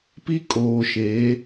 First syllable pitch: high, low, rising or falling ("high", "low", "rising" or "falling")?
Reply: high